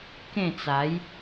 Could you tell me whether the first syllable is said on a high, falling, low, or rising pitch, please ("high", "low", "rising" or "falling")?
falling